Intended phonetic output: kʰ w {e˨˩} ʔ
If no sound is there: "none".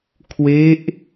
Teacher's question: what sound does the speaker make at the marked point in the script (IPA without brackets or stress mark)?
e˦˥